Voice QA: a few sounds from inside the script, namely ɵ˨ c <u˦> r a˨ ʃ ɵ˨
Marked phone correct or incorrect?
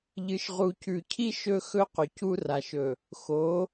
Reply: correct